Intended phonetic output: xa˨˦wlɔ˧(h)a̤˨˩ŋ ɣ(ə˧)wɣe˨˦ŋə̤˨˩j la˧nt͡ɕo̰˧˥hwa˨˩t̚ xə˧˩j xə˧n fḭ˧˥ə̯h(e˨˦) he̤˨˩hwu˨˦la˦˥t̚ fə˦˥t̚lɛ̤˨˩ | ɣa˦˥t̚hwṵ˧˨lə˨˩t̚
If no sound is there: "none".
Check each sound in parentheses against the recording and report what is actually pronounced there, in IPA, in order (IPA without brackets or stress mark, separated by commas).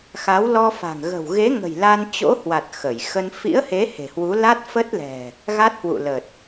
f, ə̤˨˩, e˨˦